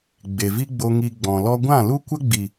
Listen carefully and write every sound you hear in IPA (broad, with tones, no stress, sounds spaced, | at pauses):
ɡ͡b e˨ v i˦ ɡ͡b o˧ ŋ i˧ ɡ͡b ɔ̃˨ l ɔ˦ ɡʷ ã˦˨ l u˦ kʷ ə˦ ɡ͡b i˨